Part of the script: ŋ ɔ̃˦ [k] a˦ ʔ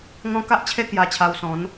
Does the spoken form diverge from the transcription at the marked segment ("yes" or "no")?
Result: no